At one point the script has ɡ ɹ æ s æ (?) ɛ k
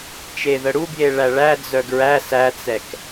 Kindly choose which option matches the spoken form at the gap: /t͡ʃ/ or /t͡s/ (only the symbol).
t͡s